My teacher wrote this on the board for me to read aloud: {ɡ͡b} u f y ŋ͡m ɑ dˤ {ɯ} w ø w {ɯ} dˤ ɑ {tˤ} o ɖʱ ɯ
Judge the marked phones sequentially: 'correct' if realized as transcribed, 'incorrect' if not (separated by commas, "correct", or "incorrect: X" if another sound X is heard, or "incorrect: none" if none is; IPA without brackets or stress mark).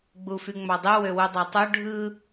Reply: correct, correct, incorrect: u, correct